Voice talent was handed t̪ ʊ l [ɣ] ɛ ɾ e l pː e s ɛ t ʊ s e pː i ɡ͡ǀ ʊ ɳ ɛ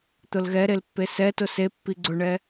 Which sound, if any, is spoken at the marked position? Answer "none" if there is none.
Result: ɣ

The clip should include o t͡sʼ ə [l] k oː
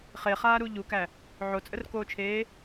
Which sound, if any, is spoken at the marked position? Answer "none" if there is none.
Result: r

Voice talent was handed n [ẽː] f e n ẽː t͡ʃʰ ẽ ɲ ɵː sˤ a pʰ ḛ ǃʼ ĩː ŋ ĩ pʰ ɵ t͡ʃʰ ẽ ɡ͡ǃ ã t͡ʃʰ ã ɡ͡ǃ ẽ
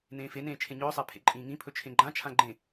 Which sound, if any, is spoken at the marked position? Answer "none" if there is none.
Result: ẽː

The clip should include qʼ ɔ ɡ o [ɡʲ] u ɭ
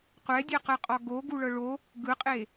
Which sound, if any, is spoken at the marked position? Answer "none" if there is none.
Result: ɡ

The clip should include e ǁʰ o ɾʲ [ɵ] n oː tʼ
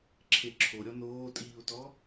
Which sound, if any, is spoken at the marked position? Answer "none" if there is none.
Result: ɔ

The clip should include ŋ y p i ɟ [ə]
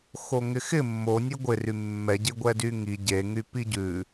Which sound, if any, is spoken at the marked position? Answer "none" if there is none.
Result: ʉ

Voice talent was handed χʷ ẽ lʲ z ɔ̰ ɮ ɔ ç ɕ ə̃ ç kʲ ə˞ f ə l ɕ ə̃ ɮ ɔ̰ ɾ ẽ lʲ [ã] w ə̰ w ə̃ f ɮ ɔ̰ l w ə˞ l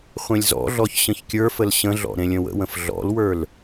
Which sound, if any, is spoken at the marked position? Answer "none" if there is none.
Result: ə̃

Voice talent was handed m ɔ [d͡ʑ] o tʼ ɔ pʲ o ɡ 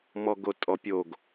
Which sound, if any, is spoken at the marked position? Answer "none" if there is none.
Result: ɡ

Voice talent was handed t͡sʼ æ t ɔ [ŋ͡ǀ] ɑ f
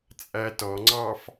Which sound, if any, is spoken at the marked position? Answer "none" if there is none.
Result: ŋ͡ǀ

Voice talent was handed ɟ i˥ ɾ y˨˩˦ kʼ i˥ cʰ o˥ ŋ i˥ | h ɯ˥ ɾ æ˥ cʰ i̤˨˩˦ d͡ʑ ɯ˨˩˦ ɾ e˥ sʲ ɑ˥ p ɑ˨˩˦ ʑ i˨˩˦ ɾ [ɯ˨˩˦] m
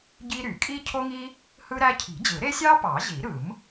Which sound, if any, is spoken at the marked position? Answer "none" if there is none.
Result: ɯ˨˩˦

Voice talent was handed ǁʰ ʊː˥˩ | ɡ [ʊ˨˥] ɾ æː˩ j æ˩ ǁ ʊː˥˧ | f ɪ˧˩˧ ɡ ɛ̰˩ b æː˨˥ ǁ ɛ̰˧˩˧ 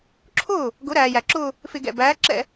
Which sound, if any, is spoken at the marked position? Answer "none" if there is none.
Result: ʊ˨˥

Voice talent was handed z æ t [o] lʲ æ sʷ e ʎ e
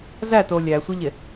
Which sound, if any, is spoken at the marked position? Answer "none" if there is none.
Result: o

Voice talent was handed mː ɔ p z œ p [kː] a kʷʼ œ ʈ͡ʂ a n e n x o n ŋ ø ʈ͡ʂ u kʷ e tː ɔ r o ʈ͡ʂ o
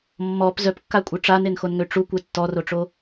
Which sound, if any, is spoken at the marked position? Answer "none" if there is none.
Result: kː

